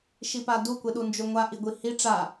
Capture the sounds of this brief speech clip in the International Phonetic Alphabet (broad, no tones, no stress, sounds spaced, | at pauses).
ʃ i p a d u kʷ e ɗ u n d͡ʒ o ŋʷ a ʔ i ɡʷ i h i ʈ͡ʂ a